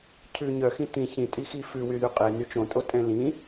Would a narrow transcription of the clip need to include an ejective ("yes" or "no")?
yes